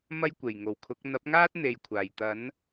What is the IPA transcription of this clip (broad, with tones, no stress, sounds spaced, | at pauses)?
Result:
m ɐ˥ j kʷ e˨˩ j ŋ o˨˩ w kʰ ʊ˨˥ k̚ n̪ ɐ˨˥ p̚ ŋ aː˥ t̚ n̪ e˨ j kʷʰ aː˨˩ j t̪ ɐ˨˥ n